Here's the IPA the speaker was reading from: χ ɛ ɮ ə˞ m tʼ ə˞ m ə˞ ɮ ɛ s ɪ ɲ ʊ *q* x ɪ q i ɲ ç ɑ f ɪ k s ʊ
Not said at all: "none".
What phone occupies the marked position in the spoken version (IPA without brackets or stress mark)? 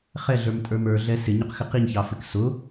q